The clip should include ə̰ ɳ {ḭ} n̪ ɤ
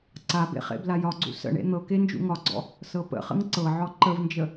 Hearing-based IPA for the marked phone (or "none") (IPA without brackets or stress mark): ḛ